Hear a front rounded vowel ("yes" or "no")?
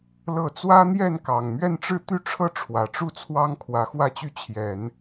yes